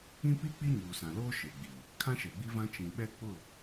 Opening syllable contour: high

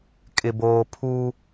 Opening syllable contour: low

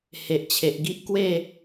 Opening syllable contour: low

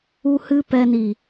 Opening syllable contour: low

